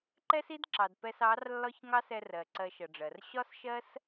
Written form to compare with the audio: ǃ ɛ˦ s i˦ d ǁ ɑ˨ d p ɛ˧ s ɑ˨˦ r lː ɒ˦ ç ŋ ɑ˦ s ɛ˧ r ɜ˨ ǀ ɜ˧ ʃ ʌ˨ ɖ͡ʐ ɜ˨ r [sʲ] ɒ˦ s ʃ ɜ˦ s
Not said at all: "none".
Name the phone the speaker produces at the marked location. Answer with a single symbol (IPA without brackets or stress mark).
ɕ